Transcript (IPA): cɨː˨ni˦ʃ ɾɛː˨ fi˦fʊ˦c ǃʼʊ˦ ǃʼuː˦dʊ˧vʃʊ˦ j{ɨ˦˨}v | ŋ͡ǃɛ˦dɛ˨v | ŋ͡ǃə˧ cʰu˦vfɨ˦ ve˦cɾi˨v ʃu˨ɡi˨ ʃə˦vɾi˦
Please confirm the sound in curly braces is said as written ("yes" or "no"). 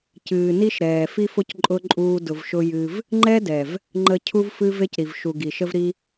no